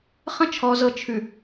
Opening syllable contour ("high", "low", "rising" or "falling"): high